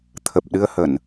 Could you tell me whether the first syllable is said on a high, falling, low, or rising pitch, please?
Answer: low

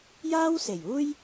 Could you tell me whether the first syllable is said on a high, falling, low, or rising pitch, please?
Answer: high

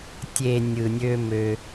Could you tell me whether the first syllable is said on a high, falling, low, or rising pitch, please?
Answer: low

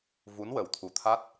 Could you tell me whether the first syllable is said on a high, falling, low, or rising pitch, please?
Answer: rising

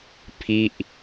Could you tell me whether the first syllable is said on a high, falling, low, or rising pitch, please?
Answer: falling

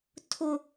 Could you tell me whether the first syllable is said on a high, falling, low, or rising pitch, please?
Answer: high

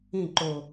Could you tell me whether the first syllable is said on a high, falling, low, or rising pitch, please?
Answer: falling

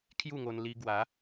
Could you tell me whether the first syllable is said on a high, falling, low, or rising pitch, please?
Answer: falling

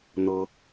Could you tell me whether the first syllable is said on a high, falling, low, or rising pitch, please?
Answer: high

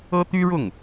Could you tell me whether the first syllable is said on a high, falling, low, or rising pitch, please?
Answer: high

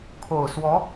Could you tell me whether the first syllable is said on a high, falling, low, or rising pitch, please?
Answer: low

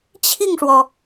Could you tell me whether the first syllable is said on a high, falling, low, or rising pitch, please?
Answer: falling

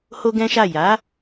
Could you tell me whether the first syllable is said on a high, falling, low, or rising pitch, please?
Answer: high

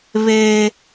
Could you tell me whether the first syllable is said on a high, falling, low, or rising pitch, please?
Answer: high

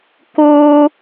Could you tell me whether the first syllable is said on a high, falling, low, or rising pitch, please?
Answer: high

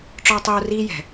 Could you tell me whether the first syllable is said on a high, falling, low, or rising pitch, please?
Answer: high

